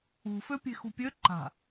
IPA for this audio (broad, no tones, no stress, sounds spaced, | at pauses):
ṳ f ø pʲ e̤ x ṳ pʲ ø ǃ a̤